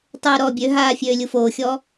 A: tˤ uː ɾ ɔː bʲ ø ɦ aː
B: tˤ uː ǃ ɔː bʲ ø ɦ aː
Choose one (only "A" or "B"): A